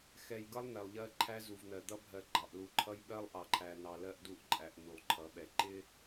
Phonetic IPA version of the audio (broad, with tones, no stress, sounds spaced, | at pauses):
x ɛ˨ j ɡ ʌ˦ lˠ n ɛ˨ lˠ ʎ ɜ˦ ǃʰ æ˦ z u˨ v n̪ ɜ˨ d̪ ʌ˦ bʱ ɜ˨ ɡ͡ǃ ɑ˨ ʔ l u˨ ǃʰ ʌ˦ j ɓ ɜ˦ lˠ ʔ ɑ˨ ǃʰ æ˨ n ɑ˨ l ɜ˦ ʔ d u˦ ʔ ǃʼ æ˨ ʔ n̪ u˨ lˠ ǃʰ ʌ˨˦ ɓ ɛ˨ ǃ ɪ˦